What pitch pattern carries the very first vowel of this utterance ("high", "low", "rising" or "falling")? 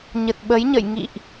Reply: low